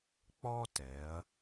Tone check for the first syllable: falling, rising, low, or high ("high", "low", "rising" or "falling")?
high